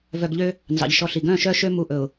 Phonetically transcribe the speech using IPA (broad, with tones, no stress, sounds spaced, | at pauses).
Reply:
v œ˨ ɡ ʎ ø˦ | n z ɑ̰˨ ʎ ʃ ɔ˦ ɬ i˨ ɡ œ̃˦˨ ʃ œ˦ ʃ ø˦ m u˦˨ ʔ ɵ˨ ʊ̯